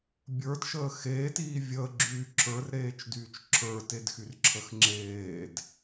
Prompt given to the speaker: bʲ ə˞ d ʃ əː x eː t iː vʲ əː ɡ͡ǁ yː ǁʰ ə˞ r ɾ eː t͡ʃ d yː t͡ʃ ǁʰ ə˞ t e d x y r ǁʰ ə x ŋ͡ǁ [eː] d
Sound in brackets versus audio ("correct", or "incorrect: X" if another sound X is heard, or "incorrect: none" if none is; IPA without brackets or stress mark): correct